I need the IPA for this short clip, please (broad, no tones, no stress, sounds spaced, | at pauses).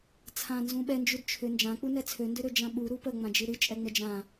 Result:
t͡sʰ ã n z ũ ɓ ɛ n d͡ʒ u d t͡ʃʰ ʏ n d͡ʒ ã k͡p u n ɛ t͡sʰ ø n d ø ɾ ø d͡ʒ ã ɓ u ɾ u p ə ŋ͡m ã d͡ʒ ɨ ɾ ɨ t͡ʃʼ ɛ ŋ͡m ə d͡ʒ ã